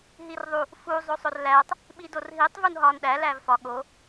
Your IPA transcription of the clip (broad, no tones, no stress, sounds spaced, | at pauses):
ɦ i r ðˤ u | f u zˤ o sˤ o r l æ tˤ | ɓ i d o r ɦ i tˤ v u n ɦ ɒ n ɗ æ l æ v f ɒ ɠ o